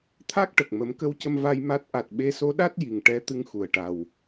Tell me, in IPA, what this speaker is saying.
t̪ʰ a˦˥ k̚ ʈ ə˨˩ k̚ m ə˨˩˦ m k ə˧˥ w c ə˧ m v a˧ j m a˦˥ t̚ ʔ a˨˩ t̚ ɓ e˧ s o˧˥ ɗ a˦˥ t̚ j i˨˩ ŋ ʈ ɛ˧˥ t̪ ɨ˧ ŋ x u˨˩ ə̯ ʈ a˨˩ w

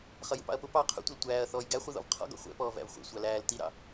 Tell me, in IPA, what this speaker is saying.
χ ʌ j ṵ p ɑ̰ ɐ̯ p ʊ p ɑ qʰ ṵ tʷ ʌ l tʷ æː ɐ̯ θ ɔː j ɡ æ χʷ i ð ɔ̰ v qʰ ɔ̰ ɡ ɔ̰ χʷ ɛ̰ p ɔː v æ̰ v χʷ ɛ̰ sʷ ɑ l æː l t i ɾ ɑ̰

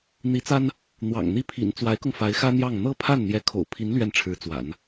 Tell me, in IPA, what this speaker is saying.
n̪ i˧˥ t͡s a˥ n | n̪ w ɑ̰˨˩ ŋ n̪ i˥˩ pʰ ḭ˨˩ n t͡s w a˧˥ ɪ̯ k ʊ˧ ŋ f a˧˥ ɪ̯ x ä˥ n̪ j ɑ˥˩ ŋ n̪ ɤ˥ pʰ a˥˩ n n̪ j ɛ˧˥ kʰ o̰˨˩ ʊ̯ pʰ i˧˥ n l ɥ ɛ˥˩ n ʈ͡ʂʰ ɻ̩˧˥ t͡s w a̰˨˩˦ n

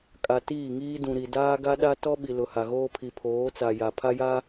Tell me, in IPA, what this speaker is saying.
kʼ a˨ t iː˦˨ ŋ iː˦ d ũ˨ ɾ i˨ d aː˦ ɡ a˦ ɗ a˦ t ɔ˦ ɓ i˨ l ʊ˨ h a˨ ɣ oː˦ pʰ i˨ pʰ oː˨˦ t͡s a˨ j a˨ pʰ a˦ j a˦

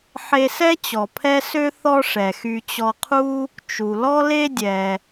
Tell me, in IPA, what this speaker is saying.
ħ e˧ s ɛ˥ t͡ɕ ɔ˩ pʰ ɛ˥ s ø˥ θ ɔ˥ ʂ ɛ˩ x y˧ t͡ɕ ɔ˧ qʰ u˥ | t͡ʃ u˩ l ɔ˥ l e˥ dʲ ɛ˩

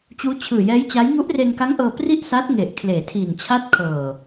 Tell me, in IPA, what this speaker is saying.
t͡ɕ uː˦˥ t͡ɕʰ ɯː˨˩ j ɛː˦˥ j t͡ɕ a˦˥ j ŋ u˦˥ ʔ r e˧ n k a˦˥ ŋ ʔ ɤː˧ p r i˥˩ ʔ s a˦˥ t̚ ŋ e˨˩ ʔ kʰ l eː˩˦ tʰ iː˨˩ n t͡ɕʰ a˥˩ t̚ kʰ ɤː˨˩

